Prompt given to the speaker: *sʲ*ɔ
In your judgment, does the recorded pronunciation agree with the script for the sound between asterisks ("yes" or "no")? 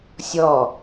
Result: yes